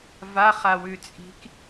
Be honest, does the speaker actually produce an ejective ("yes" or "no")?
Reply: yes